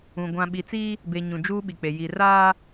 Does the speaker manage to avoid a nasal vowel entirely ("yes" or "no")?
no